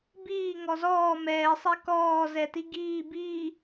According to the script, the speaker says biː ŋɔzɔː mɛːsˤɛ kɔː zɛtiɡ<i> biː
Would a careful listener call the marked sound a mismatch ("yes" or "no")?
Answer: yes